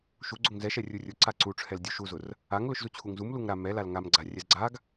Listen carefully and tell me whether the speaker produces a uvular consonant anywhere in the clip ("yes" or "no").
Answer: no